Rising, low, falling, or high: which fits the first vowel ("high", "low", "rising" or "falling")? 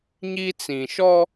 high